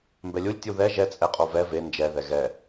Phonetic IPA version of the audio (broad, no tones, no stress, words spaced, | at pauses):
mbɛlʲulʲ tʲuðɛ ʒɛ t͡sʼɛqʼovɛ ve nd͡ʒɛ ðɛɣɛ